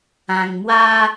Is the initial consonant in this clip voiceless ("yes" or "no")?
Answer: no